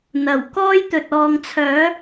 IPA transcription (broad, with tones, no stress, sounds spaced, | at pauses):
n̪ ɐ˨˩ w k ɔː˥ j t̪ ɵ˨ t̚ ɔː˨ ŋ t͡sʰ œː˨˥